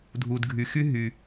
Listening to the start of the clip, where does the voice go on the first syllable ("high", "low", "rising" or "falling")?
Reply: low